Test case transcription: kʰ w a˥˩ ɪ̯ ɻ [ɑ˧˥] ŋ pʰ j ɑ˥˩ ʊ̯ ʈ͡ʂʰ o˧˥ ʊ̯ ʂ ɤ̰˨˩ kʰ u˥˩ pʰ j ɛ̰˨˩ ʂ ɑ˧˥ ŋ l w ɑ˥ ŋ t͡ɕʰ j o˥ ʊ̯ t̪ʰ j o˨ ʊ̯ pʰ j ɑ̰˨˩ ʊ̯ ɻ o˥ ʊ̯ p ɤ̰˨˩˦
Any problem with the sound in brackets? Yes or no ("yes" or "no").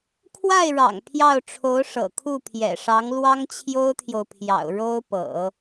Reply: yes